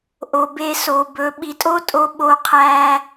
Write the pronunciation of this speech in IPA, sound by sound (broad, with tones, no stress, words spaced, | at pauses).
ʔo˨be˧ so˨bɵ˨˦ɓi˧ tʼo˦tʼo˧ ɓo˧qʰæ˧